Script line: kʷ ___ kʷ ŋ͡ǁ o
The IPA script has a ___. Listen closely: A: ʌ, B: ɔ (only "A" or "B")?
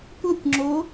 A